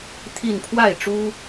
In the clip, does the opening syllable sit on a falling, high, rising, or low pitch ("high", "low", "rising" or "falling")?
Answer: falling